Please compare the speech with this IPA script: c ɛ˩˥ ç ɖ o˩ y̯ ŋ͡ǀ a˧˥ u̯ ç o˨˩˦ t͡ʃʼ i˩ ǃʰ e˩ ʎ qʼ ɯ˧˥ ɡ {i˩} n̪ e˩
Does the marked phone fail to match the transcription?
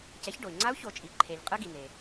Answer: no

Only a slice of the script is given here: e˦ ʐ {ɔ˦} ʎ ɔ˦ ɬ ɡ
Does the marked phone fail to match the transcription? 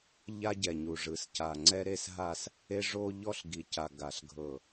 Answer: yes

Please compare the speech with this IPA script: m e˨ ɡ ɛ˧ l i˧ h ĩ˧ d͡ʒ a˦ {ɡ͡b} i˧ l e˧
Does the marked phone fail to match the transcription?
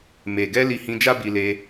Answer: yes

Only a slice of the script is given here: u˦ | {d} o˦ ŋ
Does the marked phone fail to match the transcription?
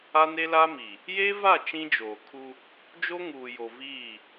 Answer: yes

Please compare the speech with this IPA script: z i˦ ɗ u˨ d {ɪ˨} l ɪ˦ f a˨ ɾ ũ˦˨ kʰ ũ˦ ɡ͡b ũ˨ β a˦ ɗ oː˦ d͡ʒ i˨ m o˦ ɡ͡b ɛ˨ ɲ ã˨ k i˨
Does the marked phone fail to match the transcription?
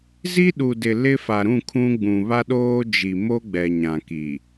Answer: no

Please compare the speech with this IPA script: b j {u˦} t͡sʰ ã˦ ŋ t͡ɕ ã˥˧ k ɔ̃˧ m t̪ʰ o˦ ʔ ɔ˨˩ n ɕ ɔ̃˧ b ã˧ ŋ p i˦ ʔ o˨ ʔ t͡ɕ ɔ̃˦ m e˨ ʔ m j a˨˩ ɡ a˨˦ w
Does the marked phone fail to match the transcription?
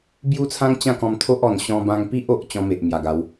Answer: no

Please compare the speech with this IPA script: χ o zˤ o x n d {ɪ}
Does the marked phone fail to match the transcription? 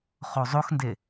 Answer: no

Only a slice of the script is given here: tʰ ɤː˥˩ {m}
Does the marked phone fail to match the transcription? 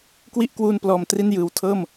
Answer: no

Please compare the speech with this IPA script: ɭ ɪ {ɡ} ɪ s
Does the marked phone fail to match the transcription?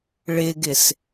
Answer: no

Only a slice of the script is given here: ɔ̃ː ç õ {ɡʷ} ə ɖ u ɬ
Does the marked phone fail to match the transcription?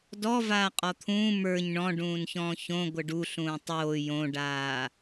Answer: no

